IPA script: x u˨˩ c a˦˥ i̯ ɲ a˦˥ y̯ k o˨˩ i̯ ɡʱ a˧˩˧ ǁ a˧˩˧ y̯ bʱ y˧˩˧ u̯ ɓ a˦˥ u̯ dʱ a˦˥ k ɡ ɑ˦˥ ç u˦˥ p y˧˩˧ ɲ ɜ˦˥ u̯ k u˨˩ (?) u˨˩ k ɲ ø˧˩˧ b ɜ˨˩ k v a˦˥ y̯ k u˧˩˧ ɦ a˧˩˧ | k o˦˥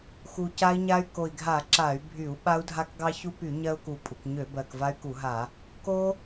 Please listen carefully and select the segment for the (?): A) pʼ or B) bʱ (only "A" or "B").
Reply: A